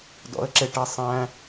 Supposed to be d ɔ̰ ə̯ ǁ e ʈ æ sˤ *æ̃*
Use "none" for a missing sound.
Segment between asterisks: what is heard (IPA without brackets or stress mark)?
æ̃